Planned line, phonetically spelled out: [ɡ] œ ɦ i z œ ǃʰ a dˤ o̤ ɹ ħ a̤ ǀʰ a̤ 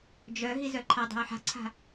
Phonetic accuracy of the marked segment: incorrect: d͡ʒ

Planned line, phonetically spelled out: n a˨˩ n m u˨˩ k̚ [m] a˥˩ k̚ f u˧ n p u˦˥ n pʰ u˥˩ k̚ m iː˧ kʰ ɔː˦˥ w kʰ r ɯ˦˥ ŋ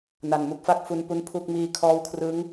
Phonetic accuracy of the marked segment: incorrect: f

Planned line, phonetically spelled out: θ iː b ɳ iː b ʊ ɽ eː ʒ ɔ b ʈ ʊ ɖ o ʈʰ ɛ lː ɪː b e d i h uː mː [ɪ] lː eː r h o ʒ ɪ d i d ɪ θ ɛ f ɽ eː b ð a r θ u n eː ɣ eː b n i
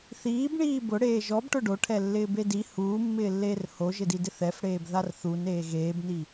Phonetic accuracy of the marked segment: incorrect: ɪː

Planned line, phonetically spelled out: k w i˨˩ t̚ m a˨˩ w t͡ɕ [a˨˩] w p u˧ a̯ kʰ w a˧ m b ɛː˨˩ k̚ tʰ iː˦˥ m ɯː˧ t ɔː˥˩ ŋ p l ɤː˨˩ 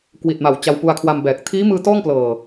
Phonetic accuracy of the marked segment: incorrect: a˧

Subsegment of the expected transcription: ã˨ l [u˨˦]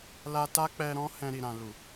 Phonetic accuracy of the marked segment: incorrect: u˨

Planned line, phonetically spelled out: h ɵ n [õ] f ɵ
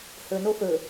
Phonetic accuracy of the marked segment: incorrect: o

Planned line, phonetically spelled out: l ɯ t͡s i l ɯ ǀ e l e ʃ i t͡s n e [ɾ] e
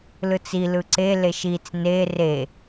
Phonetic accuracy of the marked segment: incorrect: r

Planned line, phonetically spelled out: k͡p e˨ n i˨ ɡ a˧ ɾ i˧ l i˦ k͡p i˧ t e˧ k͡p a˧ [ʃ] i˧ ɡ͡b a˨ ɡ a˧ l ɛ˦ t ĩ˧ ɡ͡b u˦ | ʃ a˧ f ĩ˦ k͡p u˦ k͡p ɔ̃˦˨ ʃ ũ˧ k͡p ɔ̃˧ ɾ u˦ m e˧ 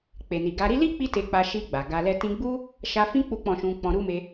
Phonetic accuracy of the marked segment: correct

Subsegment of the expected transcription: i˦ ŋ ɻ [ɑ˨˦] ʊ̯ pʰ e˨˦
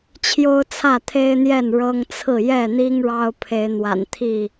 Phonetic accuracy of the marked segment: incorrect: ɑ˦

